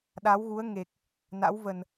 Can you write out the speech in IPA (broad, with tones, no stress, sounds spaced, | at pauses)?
ɗ a˨˦ w ɣ u˨˦ ə̯ ŋ e˨˩ k̚ | n a̰˧˥ w v ə˨˩ n